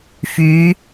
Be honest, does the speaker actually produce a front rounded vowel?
yes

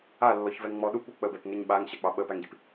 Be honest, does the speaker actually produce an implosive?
yes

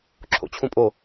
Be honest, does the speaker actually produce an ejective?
yes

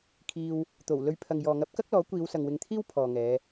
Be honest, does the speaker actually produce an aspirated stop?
yes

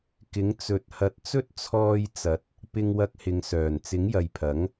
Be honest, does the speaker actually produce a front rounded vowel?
yes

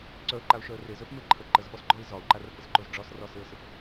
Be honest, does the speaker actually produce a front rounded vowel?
yes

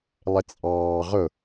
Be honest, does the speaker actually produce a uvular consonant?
yes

